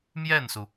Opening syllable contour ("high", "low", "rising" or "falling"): falling